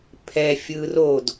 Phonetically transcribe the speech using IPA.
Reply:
pʰ ɛ fʲ ɯ r o d

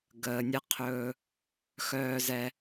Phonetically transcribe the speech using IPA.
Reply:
ɡ əː˨ nʲ ə˦ qʰ ɵː˦ | x œː˦ z ɛ˦

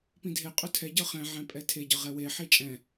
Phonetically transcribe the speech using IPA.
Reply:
p ĩ dʱ e qʼ ɵ tʰ ɛ ɟ ɤ χ ɛ̃ ʕ ɛ̃ pʼ ɛ tʰ e ɟ ɤ ʁ ɛ w e ħ i t͡ʃʼ ɛ̃

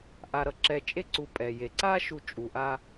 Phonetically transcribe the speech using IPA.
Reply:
ʔ a˧ ɾ ʌ˧ ǁ ɛ˧ t͡ʃʼ e˥ ǀ u˧ pʼ ɛ˩ j e˩ ǀ a˥ ʃ u˧ t͡ʃʼ u˩ ʔ a˧

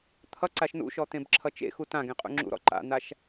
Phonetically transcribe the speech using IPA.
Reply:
t̪ʰ ʌ ǀ a ʃ n ṵ ʃ ɔ t̪ ẽ b ǁʰ ʌ t͡ʃ ḛ x u t ã ɡ ẽ qʼ ṵ ŋ͡ǁ ṵ ɾ ɔ̰ ǃ a̰ n̪ a ʃ

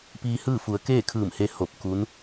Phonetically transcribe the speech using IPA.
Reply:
p iː˧ h ɯː˥˨ f u˩˧ ə̯ k eː˥˨ kʰ ɯː˧˩ m h e˧ h o˧˩ p̚ k u˧˥ n

